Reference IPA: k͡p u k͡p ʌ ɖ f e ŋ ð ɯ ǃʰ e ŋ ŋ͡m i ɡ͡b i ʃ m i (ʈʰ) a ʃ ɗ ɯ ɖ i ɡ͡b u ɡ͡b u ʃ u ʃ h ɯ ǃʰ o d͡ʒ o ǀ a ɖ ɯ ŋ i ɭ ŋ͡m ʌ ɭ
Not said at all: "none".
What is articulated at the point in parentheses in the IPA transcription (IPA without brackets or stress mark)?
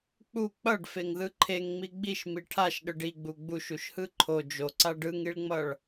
ʈʰ